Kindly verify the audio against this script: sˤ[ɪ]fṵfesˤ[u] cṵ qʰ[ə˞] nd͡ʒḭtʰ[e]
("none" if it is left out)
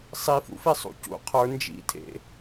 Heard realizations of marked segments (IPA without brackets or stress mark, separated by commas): i, ṵ, ə˞, ḛ